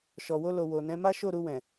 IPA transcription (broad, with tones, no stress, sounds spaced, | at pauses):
ʃ ɔ˨ w o˧ l o˨ w o˨ n ɛ̃˨˦ m a˦ ʃ o˦˨ ɾ u˧ w ɛ̃˨